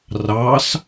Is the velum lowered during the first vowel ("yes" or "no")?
no